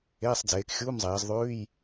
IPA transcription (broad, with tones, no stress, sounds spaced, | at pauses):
eː˧˥˧ sˤ d͡z eː˨˦ k xʲ uː˧˥˧ m zˤ eː˨˦ z ðˤ ʉː˧˥˧ j